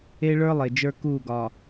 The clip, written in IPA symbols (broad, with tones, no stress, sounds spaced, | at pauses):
e˦ ɭ ə˞˦ lˠ e˨ d͡ʒ ə˞˦ k uː˦˨ ɡ ɒ˨